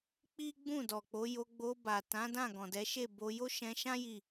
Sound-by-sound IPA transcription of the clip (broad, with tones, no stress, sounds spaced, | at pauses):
k͡p i˦ ɡ͡b ũ˦˨ d ɔ˨ k͡p o˨˦ j o˧ ɡ͡b o˧ b a˨ t ã˨˦ d ã˦˨ ɡ ɔ̃˨ d ɛ˨˦ ʃ e˦˨ b o˧ j o˦ ʃ ɛ̃˧ ʃ ã˦ j i˦˨